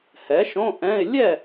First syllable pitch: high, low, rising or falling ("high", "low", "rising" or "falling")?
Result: rising